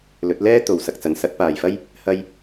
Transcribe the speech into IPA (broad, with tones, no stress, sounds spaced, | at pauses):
l ɵ˨˥ t̚ l ɛː˥ t̪ o˨ w s ɐ˨ k̚ t͡s ɐ˨ n s ɐ˧ t̚ p aː˨ j f ɐ˥ j | h ɐ˧ j